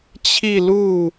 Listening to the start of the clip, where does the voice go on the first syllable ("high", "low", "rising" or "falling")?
falling